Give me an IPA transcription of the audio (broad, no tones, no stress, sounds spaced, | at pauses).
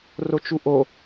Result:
r o t͡ʃ u ʔ o